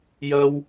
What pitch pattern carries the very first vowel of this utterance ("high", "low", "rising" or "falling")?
high